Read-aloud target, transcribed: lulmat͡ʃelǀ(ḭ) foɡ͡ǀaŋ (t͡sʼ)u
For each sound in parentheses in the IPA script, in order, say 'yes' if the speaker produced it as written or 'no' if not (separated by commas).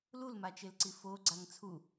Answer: no, no